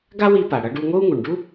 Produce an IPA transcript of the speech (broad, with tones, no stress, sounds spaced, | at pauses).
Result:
ɡ a˥ w i˧ p a˩ ɽ ʌ˧ ɖ u˧ ŋ o˥ u̯ ŋ u˩ ɳ ɖ u˥